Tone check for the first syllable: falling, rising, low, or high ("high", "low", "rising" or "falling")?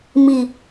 low